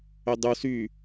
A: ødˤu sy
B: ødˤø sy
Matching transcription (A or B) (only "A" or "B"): A